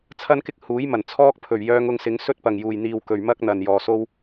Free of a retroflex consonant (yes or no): yes